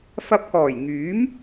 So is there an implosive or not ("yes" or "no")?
no